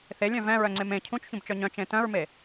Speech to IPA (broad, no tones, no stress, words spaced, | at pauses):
θelʲœ̃ vɛ̃ɹœŋ͡ǀem ẽ cʰũt͡ʃçũbt͡ʃœ ɲœ̃t͡ʃẽ tœ̃ɹme